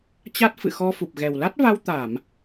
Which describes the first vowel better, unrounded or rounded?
unrounded